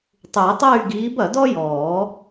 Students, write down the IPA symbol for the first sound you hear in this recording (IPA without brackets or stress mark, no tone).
tˤ